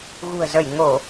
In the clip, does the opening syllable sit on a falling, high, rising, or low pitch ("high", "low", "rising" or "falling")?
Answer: low